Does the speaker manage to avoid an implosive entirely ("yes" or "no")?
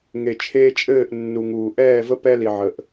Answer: yes